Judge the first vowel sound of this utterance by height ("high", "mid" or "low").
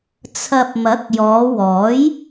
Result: low